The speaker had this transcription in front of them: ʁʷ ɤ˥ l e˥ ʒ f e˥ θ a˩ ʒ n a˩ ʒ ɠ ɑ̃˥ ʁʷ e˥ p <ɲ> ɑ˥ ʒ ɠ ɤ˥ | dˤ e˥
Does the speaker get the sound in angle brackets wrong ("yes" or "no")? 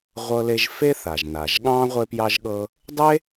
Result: yes